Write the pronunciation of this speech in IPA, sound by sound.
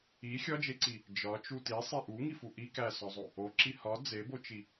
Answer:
i xʲ ɒ d͡ʒ e ǀ i | d͡ʒ ɒ t͡ʃ u t i sˤ e ʔ u ŋ i f u ʔ i k æ s ɒ zˤ o | o ǁ i h ɒ d͡z e b o t͡ʃ i

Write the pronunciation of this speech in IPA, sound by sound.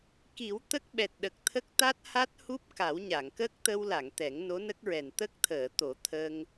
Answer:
k i˨˩˦ w t̪ ə˦˥ k̚ ɓ ɛ˨˩ t̚ ɗ ə˨˩ k̚ t̪ʰ ə˦˥ k̚ t̪ a˦˥ t̚ h a˦˥ t̚ h u˦˥ p̚ k a˨˩˦ w ɲ a˨˩˨ ŋ k ə˦˥ k̚ t̪ ə˧ w l a˨˩˨ ŋ t̪ ɛ˨˩˦ ŋ n o˧˥ n ə˦˥ k̚ ɹ ɛ˨˩ n t̪ ə˦˥ k̚ t̪ʰ əː˨˩˨ t̪ o˨˩˦ t̪ʰ ə˧ ŋ

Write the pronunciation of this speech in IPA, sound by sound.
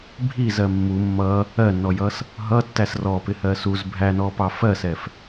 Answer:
bʱ i z ɜ mː u mː ʌ | ɜ nː ɔ j ʌ s | ɦ ʌ tː æ s r ɔ p ɪ h ɜ s u z bʱ æ n ɔ p ɑ f ɜ s ɛ f

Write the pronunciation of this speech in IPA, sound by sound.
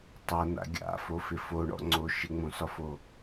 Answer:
tˤ ɤ n a̰ ɡʲ a̰ f o f ɪ f o ɳ ɔ̰ ŋ͡ǀ o ʃ ɪ ŋ͡m õ s ɒ f o

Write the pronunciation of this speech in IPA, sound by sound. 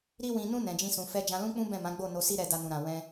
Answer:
ɾ i˦ w ĩ˧ n ũ˦ n ɛ̃˧ d͡ʒ ĩ˦ s ũ˧ f ɛ˧ d͡ʒ ã˧ l ũ˦ k͡p ũ˦ b ɛ̃˦˨ m ã˨˦ ɡ͡b o˦˨ n o˧ s i˦ ɾ ɛ˧ d a˧ n ũ˨ ɾ ã˨ w ɛ̃˧

